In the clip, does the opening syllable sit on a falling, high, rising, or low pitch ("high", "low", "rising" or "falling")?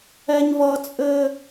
high